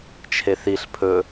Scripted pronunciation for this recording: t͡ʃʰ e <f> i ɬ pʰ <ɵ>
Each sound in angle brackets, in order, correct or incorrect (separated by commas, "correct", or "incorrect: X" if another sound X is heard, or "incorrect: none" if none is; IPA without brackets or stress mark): incorrect: θ, correct